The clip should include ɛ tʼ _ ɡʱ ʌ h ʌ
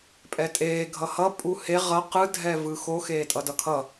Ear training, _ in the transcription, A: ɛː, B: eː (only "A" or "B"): B